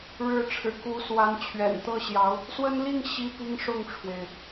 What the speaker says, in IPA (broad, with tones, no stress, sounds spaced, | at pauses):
ɻ ɻ̩˧˥ ʈ͡ʂʰ ɻ̩˨˩ k u˧˥ s w a˧˥ n t͡ɕʰ ɥ ɛ̰˨˩ n t̪ ɤ˥˩ ɕ j ɑ˧˥ ʊ̯ | s w ə˥ n l i˥˩ ŋ ɕ i˥ p i˥ ŋ ʂ ʊ˥˩ ŋ ʈ͡ʂʰ w e˩ ɪ̯